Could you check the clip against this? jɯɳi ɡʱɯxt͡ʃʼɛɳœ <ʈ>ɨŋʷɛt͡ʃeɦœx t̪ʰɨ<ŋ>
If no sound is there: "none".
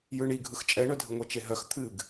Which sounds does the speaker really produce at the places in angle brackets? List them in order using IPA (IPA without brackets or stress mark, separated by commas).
dʱ, ɡ